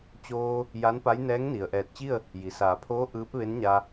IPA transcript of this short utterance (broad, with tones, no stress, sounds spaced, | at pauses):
t͡ɕ oː˧ | j a˧˥ n p a˧˥ j n ɛː˧˥ ŋ n i˩ ə̯ ʔ ɛː˧˩ t̚ t͡ɕ i˥˨ ə̯ | j i˩ s aː˩˧ pʰ oː˧˥ ʔ ɯː˧˥ p̚ ʋ e˧˥ n ɲ a˧